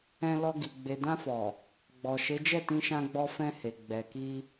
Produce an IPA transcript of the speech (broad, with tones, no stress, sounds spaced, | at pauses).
ɛ̃˧ l ɔ˧ ɡ i˨ ɡ͡b e˨ d ã˧ f ɔ˨ | ɡ͡b ɔ˨ ʃ e˨˦ d͡ʒ ɛ˦˨ t ĩ˧ ʃ ã˧ ɡ͡b ɔ˧ f ɛ̃˧ h e˨ ɡ͡b ɛ˨ k i˧